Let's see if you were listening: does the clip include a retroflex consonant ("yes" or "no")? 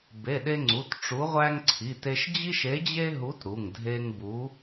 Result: yes